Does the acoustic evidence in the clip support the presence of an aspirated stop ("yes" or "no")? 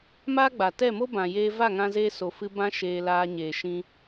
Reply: no